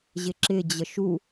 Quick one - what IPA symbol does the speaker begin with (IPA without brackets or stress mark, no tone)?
ʑ